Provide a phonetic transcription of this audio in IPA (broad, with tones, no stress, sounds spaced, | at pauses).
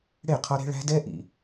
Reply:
ɽ e˦˨ qʰ ɔ˦ ɾ e̤˦ ɭ æ̤˦ d ɛ˦ ʔ ḭ˨